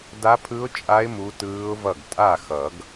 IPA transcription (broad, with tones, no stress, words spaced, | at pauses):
da˦˥pʰɯ˦˥ʊ̯ t͡ʃʼa˦˥ɪ̯ mu˦˥tɯː˦˥ʊ̯vʌ˥˩ɡ tʼa˥˩xʌ˨˩˦ɡ